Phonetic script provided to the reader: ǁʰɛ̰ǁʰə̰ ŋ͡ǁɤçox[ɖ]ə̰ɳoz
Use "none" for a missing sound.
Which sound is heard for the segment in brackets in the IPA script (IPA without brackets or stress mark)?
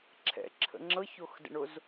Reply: d